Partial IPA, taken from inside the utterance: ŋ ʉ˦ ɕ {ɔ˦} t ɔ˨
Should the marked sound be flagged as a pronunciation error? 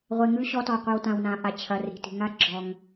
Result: no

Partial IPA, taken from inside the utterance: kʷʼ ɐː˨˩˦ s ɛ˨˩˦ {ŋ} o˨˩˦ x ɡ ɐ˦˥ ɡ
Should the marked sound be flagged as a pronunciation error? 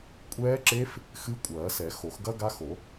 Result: yes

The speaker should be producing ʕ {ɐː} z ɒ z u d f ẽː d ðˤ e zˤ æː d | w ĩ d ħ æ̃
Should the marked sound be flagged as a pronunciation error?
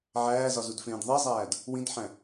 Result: yes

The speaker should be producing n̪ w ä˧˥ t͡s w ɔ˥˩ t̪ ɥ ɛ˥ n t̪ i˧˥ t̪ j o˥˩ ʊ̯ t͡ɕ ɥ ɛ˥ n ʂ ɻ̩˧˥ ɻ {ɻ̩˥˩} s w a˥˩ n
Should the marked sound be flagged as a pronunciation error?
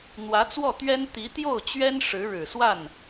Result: yes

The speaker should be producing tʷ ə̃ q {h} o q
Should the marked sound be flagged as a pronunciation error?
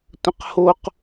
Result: no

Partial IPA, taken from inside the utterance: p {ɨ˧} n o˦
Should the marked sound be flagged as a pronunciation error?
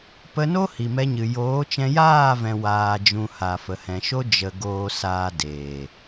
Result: yes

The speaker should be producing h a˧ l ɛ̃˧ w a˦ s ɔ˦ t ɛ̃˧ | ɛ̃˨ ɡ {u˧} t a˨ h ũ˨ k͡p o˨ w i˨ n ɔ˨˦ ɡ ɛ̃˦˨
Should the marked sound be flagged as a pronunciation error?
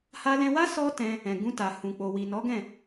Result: yes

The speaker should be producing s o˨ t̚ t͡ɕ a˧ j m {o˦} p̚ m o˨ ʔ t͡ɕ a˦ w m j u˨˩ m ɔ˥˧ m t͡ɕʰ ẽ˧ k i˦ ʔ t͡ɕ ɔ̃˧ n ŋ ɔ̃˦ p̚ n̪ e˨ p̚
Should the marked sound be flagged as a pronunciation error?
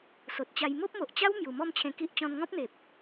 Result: no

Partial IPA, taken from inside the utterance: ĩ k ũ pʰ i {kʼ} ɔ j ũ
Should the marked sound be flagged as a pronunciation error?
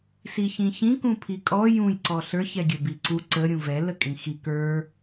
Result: no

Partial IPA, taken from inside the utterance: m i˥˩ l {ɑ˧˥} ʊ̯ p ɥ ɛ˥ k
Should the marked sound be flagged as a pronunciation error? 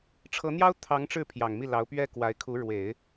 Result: no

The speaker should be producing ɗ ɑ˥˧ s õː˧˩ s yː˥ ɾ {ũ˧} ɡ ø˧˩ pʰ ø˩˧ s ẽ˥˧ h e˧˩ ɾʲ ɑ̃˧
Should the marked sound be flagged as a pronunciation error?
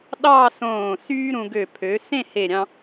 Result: no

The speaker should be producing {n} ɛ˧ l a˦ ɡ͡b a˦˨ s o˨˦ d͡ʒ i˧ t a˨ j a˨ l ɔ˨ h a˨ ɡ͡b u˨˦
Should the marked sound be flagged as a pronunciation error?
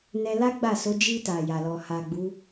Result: no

